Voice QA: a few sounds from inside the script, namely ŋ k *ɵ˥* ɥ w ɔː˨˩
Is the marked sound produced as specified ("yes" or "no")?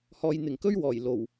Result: yes